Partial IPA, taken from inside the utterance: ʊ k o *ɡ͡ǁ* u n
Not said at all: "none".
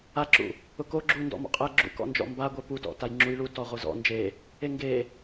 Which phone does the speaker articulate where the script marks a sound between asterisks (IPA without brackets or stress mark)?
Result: ɡ͡ǁ